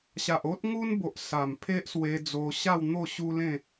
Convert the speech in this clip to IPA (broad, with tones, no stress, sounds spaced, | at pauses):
ɕ a˨ ʔ o˦ t̚ ŋ u˦ n b o˨ ʔ s a˨˩ m pʰ e˦ ʔ s w e˧ d͡z o˧ ɕ a˥˧ w n̪ o˥˧ ɕ u˦ l ẽ˥˧